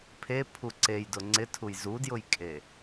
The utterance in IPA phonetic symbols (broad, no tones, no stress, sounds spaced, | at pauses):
pʰ e pʰ u ǀ e j d ʊ ŋ͡ǀ ɪ tʰ u j z u d j ʊ j kʼ e